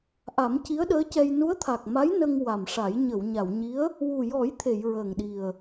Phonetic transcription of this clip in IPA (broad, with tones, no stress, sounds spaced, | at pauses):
ʔ a˨˩˦ m c i˧˥ ə̯ ɗ əː˧˥ c ɛ˧ j n u˧˥ ə̯ t̪ʰ a˨˩ k̚ m a˧˥ j n ə˧ ŋ w a˨˩ m ʂ a˨˩˦ j ɲ ə˨˩˨ w ɲ a˨˩˨ w ɲ i˧˥ ə̯ | w u˨˩ j ɔ˨˩˦ j t̪ʰ e˨˩˨ j ɹ əː˨˩ ŋ ɗ i˨˩ ə̯